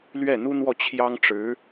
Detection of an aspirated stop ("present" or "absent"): present